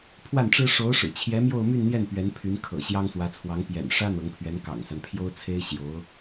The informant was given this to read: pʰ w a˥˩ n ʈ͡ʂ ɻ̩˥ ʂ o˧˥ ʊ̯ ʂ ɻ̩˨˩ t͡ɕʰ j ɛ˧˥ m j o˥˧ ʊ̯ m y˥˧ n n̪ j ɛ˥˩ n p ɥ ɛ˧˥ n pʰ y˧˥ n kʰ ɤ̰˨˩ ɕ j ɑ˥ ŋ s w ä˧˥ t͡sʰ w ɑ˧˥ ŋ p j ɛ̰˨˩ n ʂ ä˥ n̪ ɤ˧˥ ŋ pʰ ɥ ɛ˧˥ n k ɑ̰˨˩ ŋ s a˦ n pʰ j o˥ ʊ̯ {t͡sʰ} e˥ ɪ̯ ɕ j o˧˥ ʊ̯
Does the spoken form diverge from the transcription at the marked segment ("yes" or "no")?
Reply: no